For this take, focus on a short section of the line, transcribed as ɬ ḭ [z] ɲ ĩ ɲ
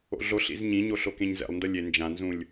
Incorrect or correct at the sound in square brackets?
correct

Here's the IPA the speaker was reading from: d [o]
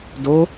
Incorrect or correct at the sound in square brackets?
correct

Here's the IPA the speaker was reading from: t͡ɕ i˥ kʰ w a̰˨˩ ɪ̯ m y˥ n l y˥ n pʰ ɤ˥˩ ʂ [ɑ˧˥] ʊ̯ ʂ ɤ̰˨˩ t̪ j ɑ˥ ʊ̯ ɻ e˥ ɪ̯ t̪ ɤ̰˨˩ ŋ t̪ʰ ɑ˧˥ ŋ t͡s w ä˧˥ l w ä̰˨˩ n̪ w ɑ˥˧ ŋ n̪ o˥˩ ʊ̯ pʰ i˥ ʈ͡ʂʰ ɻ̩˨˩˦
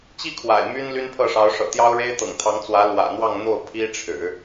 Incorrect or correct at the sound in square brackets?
correct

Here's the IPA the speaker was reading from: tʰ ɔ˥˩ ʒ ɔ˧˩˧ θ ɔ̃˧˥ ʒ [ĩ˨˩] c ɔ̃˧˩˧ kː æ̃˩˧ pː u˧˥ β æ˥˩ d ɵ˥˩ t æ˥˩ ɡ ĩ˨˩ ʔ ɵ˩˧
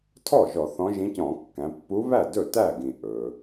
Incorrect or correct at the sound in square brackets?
incorrect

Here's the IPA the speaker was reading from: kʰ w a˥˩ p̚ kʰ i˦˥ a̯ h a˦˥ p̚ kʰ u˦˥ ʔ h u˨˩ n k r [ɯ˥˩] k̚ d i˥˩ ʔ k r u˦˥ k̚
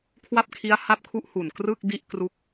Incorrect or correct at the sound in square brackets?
correct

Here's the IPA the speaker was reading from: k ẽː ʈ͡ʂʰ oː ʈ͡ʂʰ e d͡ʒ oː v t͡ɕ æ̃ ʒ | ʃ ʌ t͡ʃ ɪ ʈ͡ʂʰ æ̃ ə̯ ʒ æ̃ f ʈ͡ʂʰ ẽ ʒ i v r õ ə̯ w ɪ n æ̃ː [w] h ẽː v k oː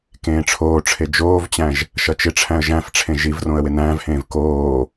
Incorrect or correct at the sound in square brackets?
incorrect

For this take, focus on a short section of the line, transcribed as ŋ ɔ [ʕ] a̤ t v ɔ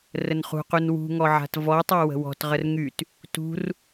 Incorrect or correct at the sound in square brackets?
correct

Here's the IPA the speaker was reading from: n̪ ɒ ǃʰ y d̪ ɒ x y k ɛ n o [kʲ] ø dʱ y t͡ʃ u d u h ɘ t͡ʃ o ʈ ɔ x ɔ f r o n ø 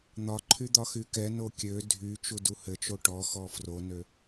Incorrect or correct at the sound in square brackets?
correct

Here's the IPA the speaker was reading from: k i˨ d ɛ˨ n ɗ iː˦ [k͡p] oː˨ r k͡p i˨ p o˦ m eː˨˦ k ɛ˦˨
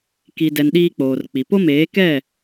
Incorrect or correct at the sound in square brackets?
correct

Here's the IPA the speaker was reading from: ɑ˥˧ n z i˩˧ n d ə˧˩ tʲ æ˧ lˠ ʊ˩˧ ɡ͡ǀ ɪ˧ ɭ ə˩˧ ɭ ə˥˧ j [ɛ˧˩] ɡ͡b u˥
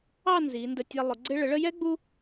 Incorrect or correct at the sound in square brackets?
incorrect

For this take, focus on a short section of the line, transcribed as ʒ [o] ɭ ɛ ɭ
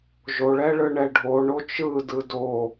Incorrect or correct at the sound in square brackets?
correct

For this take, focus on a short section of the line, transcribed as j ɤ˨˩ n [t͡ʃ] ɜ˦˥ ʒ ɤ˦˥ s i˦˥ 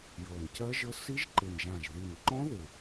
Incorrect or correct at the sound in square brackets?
incorrect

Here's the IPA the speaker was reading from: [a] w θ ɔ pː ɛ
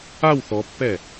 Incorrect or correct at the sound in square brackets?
correct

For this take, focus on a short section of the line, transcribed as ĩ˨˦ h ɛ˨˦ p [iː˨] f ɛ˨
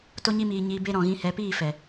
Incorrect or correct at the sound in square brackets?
incorrect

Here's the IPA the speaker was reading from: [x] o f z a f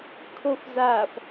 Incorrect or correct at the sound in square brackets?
incorrect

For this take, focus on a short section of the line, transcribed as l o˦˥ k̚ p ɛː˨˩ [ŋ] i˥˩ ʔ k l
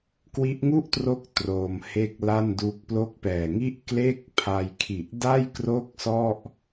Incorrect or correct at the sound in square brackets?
correct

